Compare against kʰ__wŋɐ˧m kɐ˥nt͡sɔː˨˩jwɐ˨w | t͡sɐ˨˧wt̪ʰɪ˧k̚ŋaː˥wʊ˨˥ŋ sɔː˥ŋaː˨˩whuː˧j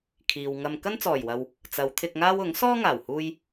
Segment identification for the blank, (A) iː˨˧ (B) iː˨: B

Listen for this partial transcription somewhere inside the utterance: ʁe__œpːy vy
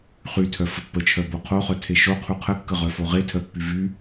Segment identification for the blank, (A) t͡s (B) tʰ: B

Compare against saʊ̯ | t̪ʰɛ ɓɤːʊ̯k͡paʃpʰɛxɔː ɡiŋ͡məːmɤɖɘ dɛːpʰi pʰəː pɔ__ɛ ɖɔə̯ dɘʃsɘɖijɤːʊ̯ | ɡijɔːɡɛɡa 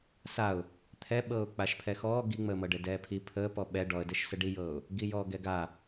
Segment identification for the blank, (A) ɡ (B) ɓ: B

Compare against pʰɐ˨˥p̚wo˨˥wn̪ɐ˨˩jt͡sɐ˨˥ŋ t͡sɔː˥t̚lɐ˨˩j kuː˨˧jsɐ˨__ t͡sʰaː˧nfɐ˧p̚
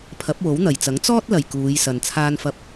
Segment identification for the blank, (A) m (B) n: B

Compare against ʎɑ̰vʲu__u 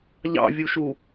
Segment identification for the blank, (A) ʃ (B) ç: A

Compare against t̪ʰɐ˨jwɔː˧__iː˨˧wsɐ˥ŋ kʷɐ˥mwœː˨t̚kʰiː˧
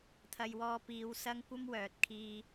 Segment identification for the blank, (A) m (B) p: B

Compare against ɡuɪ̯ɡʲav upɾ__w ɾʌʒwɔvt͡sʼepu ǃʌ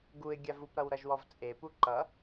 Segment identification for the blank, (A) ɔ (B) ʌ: B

